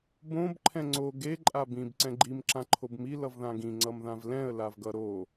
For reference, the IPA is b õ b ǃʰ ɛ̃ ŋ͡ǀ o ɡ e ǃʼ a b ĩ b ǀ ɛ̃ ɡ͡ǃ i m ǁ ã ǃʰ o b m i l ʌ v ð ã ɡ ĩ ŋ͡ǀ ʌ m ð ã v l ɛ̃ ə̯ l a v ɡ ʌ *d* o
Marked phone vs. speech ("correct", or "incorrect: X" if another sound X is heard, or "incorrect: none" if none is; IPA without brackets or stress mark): incorrect: ɾ